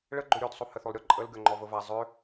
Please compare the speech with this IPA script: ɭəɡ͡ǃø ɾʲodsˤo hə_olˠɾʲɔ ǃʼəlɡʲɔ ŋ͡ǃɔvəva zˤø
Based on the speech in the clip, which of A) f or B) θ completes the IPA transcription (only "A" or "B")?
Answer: B